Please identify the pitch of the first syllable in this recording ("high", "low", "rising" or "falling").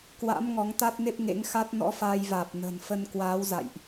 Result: rising